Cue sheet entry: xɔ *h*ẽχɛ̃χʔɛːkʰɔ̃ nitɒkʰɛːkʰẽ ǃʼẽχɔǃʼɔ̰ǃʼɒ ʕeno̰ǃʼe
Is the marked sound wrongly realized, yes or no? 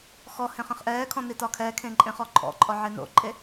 no